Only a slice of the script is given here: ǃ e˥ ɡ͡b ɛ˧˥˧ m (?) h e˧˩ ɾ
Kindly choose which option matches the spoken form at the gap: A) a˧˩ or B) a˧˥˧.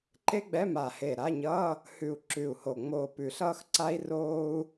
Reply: A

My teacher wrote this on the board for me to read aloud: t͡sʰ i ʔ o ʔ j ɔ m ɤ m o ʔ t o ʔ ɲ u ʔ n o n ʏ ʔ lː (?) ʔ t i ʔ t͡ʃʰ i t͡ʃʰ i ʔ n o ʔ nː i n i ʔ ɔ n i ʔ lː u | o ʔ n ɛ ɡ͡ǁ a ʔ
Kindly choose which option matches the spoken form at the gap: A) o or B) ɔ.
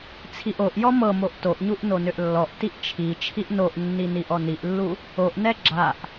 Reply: B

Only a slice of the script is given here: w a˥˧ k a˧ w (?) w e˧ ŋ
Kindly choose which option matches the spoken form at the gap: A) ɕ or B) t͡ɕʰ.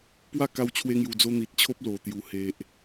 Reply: B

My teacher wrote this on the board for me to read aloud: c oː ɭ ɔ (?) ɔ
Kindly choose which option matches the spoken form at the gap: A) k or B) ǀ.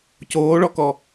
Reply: A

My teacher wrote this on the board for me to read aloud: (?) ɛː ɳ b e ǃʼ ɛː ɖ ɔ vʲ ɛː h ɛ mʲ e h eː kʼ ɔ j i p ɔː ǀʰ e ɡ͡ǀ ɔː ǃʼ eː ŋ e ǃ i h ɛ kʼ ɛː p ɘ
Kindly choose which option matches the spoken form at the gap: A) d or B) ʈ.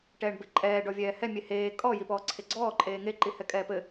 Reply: B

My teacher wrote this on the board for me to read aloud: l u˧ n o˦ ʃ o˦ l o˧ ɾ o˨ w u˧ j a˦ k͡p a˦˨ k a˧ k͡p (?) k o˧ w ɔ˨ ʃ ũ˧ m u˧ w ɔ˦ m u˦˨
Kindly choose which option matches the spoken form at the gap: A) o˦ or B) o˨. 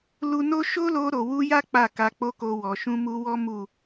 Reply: A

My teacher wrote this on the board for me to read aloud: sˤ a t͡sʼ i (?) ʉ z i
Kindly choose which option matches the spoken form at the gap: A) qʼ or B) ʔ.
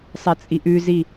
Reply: B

